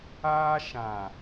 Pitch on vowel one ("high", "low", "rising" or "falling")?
high